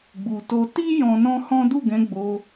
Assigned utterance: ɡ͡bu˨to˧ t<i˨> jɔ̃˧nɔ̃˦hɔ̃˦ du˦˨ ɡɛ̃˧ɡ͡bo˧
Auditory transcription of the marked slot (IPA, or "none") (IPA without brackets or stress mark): i˦